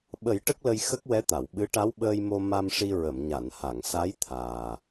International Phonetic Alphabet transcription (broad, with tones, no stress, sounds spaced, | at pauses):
ɓ ə˨˩˦ j ʈ ə˦˥ k̚ l ə˧ j x ə˦˥ k̚ w ɛ˧˥ t̪ a˨˩˨ w ɓ ɨ˧˥ ʈ a˧˥ w ɓ əː˧ j m o˧ m a˧ m ʂ i˧ ɹ ə˨˩˨ m ɲ a˨˩˨ n h a˨˩˨ ŋ s a˧˥ j t̪ʰ aː˨˩